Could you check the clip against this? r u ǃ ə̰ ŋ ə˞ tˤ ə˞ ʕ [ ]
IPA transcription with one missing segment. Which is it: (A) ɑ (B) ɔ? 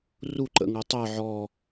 B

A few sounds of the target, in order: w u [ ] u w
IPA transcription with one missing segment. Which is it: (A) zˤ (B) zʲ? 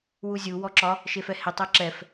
B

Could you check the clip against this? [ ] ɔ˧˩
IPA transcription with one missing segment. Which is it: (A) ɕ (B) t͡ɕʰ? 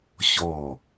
A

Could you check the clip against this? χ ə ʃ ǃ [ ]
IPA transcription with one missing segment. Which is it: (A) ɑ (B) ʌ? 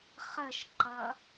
B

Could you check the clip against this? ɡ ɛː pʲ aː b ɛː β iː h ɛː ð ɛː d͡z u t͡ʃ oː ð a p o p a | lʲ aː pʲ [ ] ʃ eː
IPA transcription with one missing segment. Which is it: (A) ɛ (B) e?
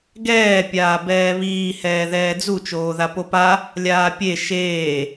B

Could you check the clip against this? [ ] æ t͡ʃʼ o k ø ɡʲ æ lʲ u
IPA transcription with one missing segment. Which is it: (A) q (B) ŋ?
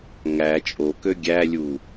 B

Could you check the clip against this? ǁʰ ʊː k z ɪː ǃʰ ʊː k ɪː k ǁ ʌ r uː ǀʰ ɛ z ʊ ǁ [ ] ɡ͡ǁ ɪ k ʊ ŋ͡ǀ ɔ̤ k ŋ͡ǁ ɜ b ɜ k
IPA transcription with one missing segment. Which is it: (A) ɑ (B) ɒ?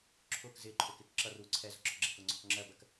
B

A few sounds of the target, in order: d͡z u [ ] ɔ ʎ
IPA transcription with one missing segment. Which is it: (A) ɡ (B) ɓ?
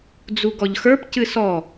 A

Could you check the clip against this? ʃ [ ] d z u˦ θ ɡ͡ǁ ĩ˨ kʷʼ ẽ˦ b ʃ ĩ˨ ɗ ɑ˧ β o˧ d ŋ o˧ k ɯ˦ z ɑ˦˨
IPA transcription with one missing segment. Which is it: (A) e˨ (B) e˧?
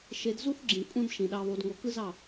B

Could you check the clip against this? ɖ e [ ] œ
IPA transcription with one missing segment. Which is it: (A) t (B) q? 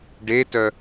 A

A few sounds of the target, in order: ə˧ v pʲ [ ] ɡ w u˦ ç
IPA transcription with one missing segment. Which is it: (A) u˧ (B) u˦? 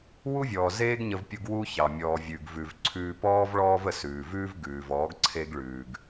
A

